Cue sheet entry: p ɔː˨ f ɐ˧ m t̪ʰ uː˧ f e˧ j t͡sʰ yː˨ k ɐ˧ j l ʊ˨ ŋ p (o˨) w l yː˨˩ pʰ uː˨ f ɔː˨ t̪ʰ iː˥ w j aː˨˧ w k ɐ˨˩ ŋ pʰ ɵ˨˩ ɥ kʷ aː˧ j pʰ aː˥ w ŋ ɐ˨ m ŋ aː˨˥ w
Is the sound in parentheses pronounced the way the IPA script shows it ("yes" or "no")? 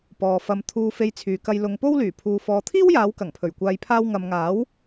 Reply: no